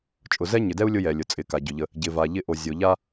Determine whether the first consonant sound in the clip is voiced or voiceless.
voiceless